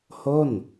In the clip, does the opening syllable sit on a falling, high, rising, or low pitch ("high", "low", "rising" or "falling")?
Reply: falling